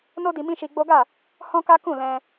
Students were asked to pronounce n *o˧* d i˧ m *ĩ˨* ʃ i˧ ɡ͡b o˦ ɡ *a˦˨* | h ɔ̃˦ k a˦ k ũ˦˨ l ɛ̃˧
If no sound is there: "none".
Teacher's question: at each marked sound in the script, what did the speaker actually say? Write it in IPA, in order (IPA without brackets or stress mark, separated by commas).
o˦, ĩ˦, a˦˨